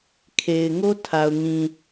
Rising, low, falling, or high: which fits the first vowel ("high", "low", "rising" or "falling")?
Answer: low